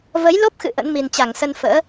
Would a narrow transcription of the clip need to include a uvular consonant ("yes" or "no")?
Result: no